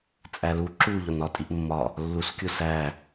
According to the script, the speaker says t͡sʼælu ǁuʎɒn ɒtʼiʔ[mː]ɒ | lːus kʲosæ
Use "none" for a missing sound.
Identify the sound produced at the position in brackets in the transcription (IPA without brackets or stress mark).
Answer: mː